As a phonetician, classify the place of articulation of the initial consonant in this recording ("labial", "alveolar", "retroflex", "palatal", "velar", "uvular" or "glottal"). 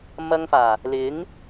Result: labial